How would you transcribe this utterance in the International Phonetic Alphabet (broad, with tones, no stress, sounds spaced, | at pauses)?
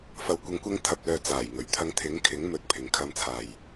f ɐ˨ w kʷ ɐ˨˧ ŋ kʷ ɐ˧ ŋ t̪ʰ ɐ˨ p̚ l œː˨ t͡s aː˨˩ j ŋ ɵ˨˩ ɥ t̪ʰ ɐ˧ ŋ t̪ʰ ɪ˨˥ ŋ kʰ ɪ˨˥ ŋ m ɵ˨˥ t̚ pʰ ɪ˨ ŋ kʰ ɐ˧ m t͡sʰ aː˨ j